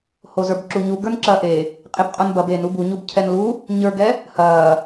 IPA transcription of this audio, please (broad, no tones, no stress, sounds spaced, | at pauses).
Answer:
h o z ə˞ b ǁ u ɲ u ɡ ə˞ n ǁ ɐː ʔ e | qʼ e b qʼ o n b ɐ b e n u b u ɲ u b cʰ ɛ n l u | ɲ ə˞ ɡ ɛ | h ɐː